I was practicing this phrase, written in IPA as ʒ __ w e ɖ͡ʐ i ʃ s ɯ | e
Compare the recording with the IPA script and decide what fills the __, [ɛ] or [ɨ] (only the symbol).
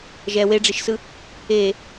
ɛ